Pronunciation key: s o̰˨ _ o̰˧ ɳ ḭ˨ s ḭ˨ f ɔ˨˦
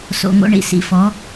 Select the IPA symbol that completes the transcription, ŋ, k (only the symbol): ŋ